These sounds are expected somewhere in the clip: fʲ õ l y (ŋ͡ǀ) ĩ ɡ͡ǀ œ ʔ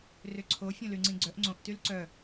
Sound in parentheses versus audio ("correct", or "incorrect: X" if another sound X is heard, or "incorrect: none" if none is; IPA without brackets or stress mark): correct